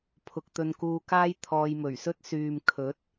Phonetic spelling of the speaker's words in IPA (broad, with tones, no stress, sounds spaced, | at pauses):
pʰ ʊ˧ k̚ t̪ ɵ˧ n k uː˧ k aː˥ j t̪ʰ ɔː˧ j m ɵ˨˩ ɥ s ɵ˥ t̚ s yː˨ m kʰ ɵ˨˥ t̚